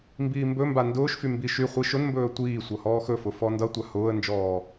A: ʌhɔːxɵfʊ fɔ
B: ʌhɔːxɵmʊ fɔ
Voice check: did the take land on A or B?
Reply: A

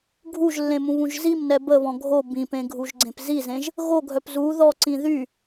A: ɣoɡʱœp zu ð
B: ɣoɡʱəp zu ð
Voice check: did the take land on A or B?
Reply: A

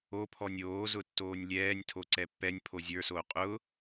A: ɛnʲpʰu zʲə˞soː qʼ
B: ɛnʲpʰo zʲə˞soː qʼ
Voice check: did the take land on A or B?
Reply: B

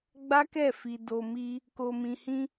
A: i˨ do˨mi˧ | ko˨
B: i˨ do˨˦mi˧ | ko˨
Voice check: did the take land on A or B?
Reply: A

